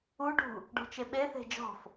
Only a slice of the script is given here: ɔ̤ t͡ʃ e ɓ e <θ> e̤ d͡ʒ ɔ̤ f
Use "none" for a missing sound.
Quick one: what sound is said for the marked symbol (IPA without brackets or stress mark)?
θ